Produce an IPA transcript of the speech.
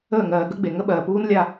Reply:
əː˦˨ŋɜː˨ ɡə˦ɡ͡be˨ ŋə˦ɓɜː˨puː˦nlʲa˦˨

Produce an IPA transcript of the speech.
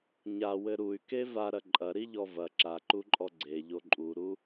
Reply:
ɲawɘ ɾuy̯ke vaɾɐ ǃʼɐɾiʎɔ vɐ ǁaǃuǃʼɔ ɡ͡ǀeʎo ǃʼuɾu

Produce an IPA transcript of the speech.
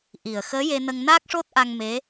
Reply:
ʔi˨˩ə̯xəː˧˥ je˧nə˧ŋnaː˦˥k̚ʂo˦˥t̚ ʔa˧ŋme˧˥

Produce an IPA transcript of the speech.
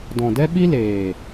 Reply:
dɔ̃˨dɛ˦ɓi˦leː˨

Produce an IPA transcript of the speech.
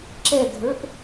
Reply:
ǁɛɡʱə˞ʔ

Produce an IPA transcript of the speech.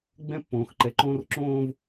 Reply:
ɡ͡bɛ̃˦pːõː˨xǃɛ˨˦ǃõː˦r ǁõː˦v

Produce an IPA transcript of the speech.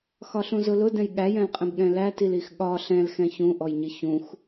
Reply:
xɒɬũzʊlʊ dɛ̃jɠæjɛ̃lqʼɛ̃b ɠɛ̃lætilix ɠɒ ɬɛ̃lxɛ̃ çũʔɔjɲɪ çũx

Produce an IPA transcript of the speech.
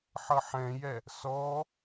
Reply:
ħʌħɛ̃jɛ | sɔ

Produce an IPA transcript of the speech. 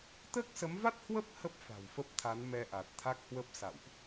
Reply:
t̪əː˦˥k̚sə˨˦mva˦˥t̚hwə˦˥p̚ hə˦˥p̚ fa̤˨˩wfə˦˥p̚t̪ʰa˨˦n mɛ˧ʔa˨˩t̚t̪ʰa˦˥k̚hwə˦˥p̚ sa̰˧˨wʔ

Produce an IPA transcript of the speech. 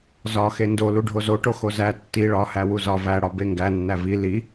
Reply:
zɒ xendo luɖʱozoʈo xozæ tːi ɭɒhæ wuzɒ væ ɽɒbeŋɡæ nːævi li

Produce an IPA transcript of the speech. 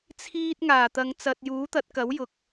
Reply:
t͡sʰiː˧t̚ ŋaː˨˩t̪ɐ˨ŋt͡sɐ˨t̚juː˨˥ t̪ɐ˨˥t̚kɐ˨˥wjʊ˨k̚

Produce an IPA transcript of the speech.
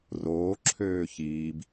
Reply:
roːǁʰøː çiːb

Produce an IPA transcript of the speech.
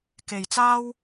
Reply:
ke˨˩jt͡saː˥w

